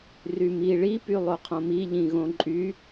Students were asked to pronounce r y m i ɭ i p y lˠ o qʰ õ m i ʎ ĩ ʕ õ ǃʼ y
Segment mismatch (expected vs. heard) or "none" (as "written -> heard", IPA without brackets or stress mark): ʕ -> ɣ